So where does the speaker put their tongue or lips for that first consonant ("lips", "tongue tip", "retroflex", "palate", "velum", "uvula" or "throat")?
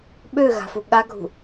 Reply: lips